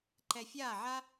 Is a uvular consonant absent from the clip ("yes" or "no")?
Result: yes